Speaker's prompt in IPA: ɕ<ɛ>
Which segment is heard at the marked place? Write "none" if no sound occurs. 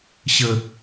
ə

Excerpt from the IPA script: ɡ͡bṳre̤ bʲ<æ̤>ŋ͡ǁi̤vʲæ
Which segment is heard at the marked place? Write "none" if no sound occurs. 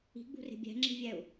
æ̤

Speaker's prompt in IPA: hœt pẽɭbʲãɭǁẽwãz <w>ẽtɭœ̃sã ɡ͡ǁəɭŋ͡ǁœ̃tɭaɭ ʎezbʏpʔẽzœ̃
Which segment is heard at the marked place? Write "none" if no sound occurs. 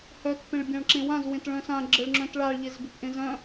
w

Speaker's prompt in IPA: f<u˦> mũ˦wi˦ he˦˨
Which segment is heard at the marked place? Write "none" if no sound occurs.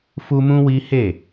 u˦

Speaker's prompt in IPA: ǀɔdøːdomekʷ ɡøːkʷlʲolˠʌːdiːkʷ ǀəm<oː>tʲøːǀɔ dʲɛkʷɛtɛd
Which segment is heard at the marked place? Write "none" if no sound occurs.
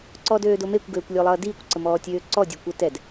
ɔː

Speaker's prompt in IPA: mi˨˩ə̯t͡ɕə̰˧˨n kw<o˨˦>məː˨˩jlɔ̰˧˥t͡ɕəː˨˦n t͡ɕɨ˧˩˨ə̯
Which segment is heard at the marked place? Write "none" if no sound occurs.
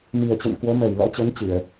o˨˦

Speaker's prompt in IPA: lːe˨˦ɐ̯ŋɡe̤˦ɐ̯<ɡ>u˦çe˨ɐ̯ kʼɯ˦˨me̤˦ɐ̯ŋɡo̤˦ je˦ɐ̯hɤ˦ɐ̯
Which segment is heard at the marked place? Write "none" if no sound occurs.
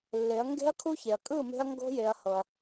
kʰ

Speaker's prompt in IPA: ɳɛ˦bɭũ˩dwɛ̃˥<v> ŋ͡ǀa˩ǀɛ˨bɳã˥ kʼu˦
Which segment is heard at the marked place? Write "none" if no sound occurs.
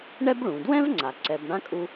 v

